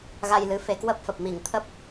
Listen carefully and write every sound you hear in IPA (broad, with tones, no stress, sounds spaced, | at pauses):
ɣ a˧ j l ɨ˨˦ f e˨˦ k w ə˦˥ p̚ f ə˨˩ p̚ m i˧˩ ŋ t̪ʰ ə˦˥ p̚